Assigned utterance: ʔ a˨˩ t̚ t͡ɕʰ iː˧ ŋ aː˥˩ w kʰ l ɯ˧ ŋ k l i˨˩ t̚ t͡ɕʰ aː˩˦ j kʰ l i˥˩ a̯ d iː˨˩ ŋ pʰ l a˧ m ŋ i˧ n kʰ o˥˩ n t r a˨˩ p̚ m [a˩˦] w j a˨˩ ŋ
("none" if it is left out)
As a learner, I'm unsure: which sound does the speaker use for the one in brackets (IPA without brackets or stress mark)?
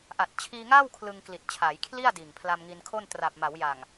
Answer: a˩˦